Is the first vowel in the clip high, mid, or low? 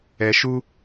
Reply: mid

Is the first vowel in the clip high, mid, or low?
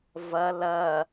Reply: low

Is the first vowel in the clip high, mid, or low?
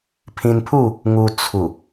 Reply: high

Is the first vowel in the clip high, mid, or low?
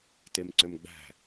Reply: mid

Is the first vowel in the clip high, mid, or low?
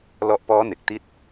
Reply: mid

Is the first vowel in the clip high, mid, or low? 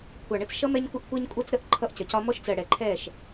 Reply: low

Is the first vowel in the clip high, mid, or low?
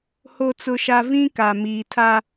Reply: mid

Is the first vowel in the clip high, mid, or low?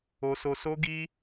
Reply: mid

